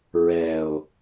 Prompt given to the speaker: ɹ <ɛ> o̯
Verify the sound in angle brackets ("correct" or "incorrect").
correct